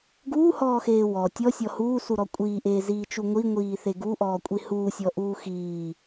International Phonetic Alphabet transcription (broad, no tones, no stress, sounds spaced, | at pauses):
ɡ uː h ɔː x eː w ɔ tʲ ɔ sʲ ɔ h uː s u ɾ ɔ kʷʼ iː ʔ eː z iː t͡ʃ u ŋʷ i ŋʷ iː θ e ɡ u ʔ ɔː kʷʼ i h uː sʲ ɔ ʔ uː x iː